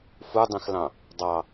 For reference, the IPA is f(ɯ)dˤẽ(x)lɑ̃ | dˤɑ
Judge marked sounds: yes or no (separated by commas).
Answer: no, yes